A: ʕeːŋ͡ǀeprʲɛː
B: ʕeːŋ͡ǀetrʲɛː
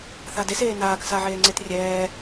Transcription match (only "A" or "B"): B